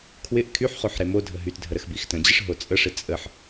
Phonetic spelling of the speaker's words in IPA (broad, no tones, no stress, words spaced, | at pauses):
kʰwɪʔ kʰyħχoħ ɾemodʱə ɦytdʱə ɾəxbixtə̃d͡ʑɪʂ ɦot͡sʼəʂɪ t͡sʼəħ